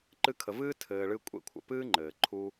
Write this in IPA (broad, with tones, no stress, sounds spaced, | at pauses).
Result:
ǃ ɨ˧ kʰ ə˨ v ɨː˦ tʰ ɘː˨ ɭ ɨ˧ kʷʼ ḛ˧ kʷʰ ə̰˨ p ɨː˦ ŋ͡ǃ ɘː˨ ǃʰ u˦